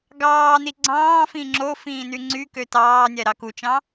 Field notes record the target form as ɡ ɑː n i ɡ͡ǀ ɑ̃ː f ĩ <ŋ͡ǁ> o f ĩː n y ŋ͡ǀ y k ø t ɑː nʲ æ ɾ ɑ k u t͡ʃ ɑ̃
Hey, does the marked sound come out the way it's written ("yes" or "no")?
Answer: yes